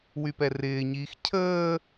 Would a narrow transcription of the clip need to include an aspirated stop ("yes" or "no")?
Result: yes